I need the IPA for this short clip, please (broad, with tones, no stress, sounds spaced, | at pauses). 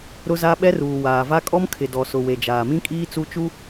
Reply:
ɾ ʊ˦ z a˦ ɓ ɛ˦ r uː˨ w aː˨ v a˦ kʼ ɔ˦ m kʰ ɪ˨ d ɔ˨ s ʊ˨ w e˨ d͡ʒ aː˨ m ĩ˦ kʼ iː˦ t͡s u˦ t͡ʃ u˦